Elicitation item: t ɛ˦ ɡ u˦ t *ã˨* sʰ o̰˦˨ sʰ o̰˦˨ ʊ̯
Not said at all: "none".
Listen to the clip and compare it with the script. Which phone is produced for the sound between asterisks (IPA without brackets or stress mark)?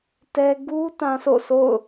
ã˦